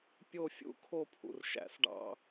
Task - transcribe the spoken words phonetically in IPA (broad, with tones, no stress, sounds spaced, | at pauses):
pʲ o˦˨ fʲ ṵ˦˨ kʰ o˦˨ pʰ ṵ˨ r ʃ æ̰˧ s ɖ ɑ̰˦